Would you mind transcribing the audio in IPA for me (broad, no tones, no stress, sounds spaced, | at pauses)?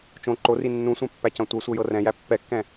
t͡ʃ õ ǃ o r i nː ũ sʷ ɛ̃ pː æ c ɐ̃ tʷ ɤ sʷ ɤ j ɤ r ɛ̃ j æ pː ɛ kː ɛ̃